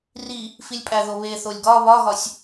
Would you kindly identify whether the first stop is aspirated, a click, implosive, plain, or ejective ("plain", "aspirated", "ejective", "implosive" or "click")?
ejective